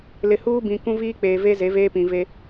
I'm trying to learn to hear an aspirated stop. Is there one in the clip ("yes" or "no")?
no